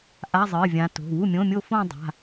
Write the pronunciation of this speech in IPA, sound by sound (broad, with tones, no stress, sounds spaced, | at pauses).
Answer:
ʔ a˧˥˧ zˤ ɨː˩˧˩ vʲ ã˨˦ t o̤˩˧˩ w u˥˩ mʲ õ˧˥˧ mʲ o˥˧ f õ˥˧ dˤ a̤˩˧˩